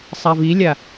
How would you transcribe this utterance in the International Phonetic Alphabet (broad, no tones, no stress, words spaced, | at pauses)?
sˤavilʲa